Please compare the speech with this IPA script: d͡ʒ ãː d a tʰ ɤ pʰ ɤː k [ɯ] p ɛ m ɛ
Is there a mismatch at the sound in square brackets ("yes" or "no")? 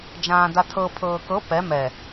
yes